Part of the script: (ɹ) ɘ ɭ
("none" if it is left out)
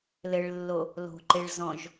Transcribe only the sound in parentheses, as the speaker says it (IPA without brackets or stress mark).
l